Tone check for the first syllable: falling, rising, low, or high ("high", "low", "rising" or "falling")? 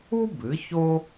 high